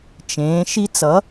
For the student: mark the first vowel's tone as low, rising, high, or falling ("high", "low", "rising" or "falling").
rising